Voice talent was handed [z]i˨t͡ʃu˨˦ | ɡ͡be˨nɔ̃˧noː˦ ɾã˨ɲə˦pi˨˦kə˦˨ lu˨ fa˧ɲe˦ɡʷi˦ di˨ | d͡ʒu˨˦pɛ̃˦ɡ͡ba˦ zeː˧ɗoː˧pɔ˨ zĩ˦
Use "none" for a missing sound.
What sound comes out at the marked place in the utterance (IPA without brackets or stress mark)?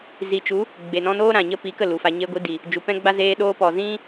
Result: z